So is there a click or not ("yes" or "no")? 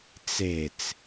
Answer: no